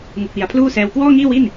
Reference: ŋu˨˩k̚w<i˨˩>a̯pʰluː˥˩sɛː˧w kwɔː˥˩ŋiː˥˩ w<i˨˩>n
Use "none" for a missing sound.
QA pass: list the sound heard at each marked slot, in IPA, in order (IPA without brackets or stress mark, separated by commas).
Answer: i˩˦, i˥˩